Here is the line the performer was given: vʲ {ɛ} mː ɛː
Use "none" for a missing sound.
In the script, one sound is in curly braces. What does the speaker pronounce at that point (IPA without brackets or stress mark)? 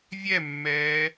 ɛ